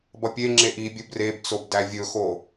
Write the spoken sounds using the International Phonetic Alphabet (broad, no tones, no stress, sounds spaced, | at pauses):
b ʌ pʲ e ŋ͡ǁ e ʔ i bʲ ɵ b r e b t͡s o b d æ vʲ ɵ x o